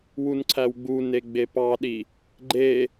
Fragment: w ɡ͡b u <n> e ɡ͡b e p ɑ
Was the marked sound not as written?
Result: no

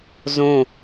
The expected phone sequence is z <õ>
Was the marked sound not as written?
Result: no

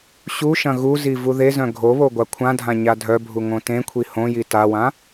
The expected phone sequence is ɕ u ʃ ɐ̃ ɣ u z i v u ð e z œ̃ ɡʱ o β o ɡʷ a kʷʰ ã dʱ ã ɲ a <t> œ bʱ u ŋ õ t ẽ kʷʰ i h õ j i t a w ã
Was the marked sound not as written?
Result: yes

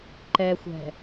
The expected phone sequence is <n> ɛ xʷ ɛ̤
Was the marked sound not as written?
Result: yes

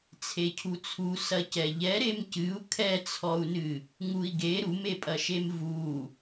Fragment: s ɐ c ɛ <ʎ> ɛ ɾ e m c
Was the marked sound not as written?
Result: no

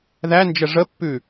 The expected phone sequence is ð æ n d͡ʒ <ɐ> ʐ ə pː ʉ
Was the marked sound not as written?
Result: yes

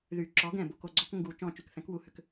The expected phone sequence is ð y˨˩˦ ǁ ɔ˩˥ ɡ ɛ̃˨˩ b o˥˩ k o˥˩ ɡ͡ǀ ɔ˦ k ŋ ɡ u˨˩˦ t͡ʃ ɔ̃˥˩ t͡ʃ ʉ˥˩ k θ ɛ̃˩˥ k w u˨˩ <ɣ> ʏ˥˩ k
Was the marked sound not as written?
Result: yes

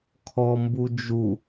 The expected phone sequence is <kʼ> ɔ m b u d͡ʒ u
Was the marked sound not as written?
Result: yes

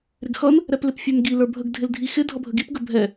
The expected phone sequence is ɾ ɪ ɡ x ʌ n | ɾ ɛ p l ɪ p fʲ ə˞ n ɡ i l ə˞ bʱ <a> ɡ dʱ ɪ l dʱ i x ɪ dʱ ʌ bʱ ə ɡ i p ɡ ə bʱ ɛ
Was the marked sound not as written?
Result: yes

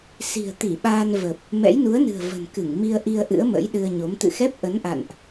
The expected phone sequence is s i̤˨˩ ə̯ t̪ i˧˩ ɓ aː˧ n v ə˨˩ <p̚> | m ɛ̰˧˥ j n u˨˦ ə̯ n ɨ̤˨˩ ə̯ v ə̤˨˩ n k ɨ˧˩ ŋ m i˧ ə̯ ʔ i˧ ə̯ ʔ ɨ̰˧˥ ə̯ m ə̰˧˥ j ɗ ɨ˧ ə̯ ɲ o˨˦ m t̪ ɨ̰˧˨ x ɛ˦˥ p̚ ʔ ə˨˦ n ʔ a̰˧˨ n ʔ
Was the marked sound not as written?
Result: no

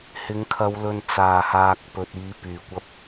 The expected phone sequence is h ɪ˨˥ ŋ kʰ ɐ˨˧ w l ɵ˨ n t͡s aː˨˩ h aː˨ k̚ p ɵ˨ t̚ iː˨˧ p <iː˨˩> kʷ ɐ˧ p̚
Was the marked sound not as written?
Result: yes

